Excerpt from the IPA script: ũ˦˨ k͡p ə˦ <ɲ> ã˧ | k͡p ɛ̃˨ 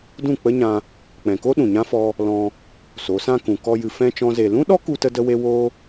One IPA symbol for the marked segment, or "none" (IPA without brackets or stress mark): ɲ